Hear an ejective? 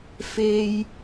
no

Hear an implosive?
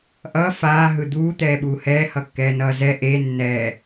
yes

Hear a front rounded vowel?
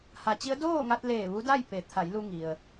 no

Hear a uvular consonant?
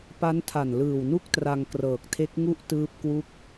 no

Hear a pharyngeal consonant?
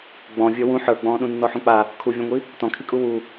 yes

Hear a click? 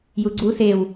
yes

